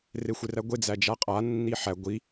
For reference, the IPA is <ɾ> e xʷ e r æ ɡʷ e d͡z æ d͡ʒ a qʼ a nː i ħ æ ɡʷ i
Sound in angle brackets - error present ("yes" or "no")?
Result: yes